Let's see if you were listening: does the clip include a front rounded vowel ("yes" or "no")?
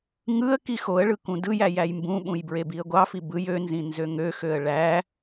yes